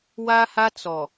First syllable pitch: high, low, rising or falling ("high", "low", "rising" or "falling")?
high